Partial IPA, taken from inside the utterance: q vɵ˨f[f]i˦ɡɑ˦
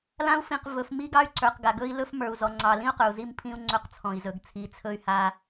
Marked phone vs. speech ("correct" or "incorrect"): incorrect